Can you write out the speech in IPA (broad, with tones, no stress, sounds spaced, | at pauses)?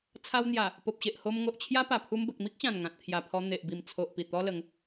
t͡sʰ a˧ w n̪ j a˨˩ | p o˨ p̚ ɕ e˨ ʔ h o˧ m ŋ o˨ ʔ t͡ɕʰ j a˦ p a˨˩ pʰ u˧ m b ə˨ k̚ m i˦ k̚ ɕ ã˨˩ n ŋ ã˨ t̚ kʰ j a˨˩ pʰ ɔ˧ n̪ e˨ ʔ b i˨˩ m t͡sʰ o˨ ʔ p i˨˩ t̪ ɔ˧ l ə˨˦ ŋ